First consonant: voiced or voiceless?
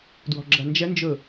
voiced